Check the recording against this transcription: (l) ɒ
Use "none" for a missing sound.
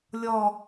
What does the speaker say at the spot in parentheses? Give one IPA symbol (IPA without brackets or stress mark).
lʲ